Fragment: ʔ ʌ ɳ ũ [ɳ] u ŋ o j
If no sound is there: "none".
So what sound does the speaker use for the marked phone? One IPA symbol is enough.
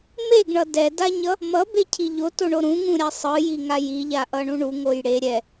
ɳ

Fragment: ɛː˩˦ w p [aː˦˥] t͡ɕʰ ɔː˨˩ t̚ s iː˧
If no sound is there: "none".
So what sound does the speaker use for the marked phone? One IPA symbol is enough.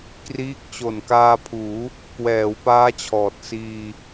aː˦˥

